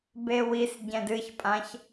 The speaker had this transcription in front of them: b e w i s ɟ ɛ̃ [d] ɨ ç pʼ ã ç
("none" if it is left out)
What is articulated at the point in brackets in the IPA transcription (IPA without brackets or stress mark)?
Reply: d